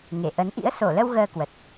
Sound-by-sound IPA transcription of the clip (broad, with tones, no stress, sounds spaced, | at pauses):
ŋ e˧˩ ʔ ə˨˦ n ʔ ḭ˧˥ ə̯ s o˧˩ l ə˧ w ɣ əː˧ k w ə˨˩ t̚